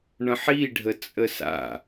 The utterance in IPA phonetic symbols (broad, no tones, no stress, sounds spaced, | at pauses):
ɳ ə̃ ħ i ɖʱ ə t͡sʼ ə s a̰